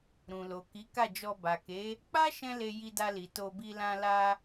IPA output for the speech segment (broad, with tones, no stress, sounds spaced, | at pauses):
ɾ ũ˨ l o˨ k i˨˦ k a˦˨ d͡ʒ ɔ˧ b a˨ k e˨˦ | k͡p a˦ ʃ ɛ̃˦ l e˧ j i˧ d a˧ l i˨ t o˧ b i˧ l ã˧ l a˧